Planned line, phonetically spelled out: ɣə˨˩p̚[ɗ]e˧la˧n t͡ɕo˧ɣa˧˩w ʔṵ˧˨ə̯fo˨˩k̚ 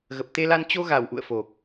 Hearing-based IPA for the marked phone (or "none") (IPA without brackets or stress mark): t̪